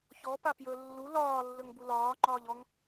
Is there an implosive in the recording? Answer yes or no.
no